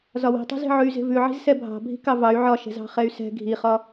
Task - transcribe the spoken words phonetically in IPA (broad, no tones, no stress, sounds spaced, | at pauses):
z ɒ w i̤ tˤ i̤ z e̤ ʕ ʉ y̯ z e̤ v ʉ ʕ i̤ z s ɛ bʱ ɑ̤ bʱ i̤ k ɑ v ɑ y̯ ʕ ɒ ʃ ɛ̤ z ɑ̤ χ ɛ y̯ s ɛ̤ ɡʱ i χ ɒ